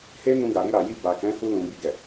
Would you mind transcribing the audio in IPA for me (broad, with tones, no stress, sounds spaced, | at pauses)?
h e˦ n ũ˧ ɡ a˨ ɾ i˧ ɾ a˨ j i˧ b a˨ k ɛ̃˨˦ h u˧ l ũ˨ b i˨ ɡ ɛ˨